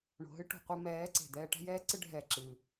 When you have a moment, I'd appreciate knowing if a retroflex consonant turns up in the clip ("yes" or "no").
yes